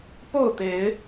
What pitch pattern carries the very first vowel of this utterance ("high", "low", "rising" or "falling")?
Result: falling